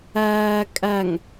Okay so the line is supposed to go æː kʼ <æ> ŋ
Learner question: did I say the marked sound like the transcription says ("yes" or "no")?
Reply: yes